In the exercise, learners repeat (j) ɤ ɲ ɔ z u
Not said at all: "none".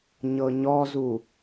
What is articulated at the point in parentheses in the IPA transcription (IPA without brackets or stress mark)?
ɲ